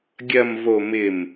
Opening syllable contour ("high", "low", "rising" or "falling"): low